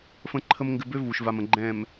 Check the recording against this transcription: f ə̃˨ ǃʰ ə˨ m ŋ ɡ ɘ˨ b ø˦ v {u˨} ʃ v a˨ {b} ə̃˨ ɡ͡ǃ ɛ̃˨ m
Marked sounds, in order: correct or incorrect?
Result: correct, incorrect: m

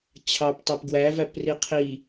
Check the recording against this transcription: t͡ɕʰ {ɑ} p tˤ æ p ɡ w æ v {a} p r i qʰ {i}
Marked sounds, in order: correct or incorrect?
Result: correct, incorrect: æ, correct

